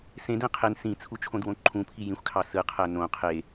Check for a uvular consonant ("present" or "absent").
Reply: present